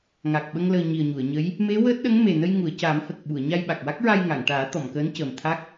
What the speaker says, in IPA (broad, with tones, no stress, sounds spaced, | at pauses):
ŋ aː˨˩ k̚ ɓ ə˧ ŋ l əː˨˩ ɲ i˨˩ ə̯ ɲ u˨˩˨ ə̯ ɲ ə˧˥ j | m e˧˥ w əː˦˥ t̚ ɗ ə˧˥ ŋ m e˨˩ n ə˧ j ŋ u˨˩˨ ə̯ c aː˨˩˦ m h ə˨˩ k̚ ɓ u˨˩˨ ə̯ ɲ a˧ j ɓ a˨˩ k̚ w a˦˥ k̚ ɹ a˧ j ŋ a˨˩˨ ŋ ʈ aː˨˩˦ t̪ ɔ˨˩˨ m k əː˧˥ n c əː˨˩ m t̪ʰ a˦˥ k̚